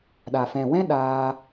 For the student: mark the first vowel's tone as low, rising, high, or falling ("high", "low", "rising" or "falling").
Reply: low